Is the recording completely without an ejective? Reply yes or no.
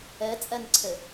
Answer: no